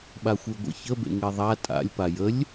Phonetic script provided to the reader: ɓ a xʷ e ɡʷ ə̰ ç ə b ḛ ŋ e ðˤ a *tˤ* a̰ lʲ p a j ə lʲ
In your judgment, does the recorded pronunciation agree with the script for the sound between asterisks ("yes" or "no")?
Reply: no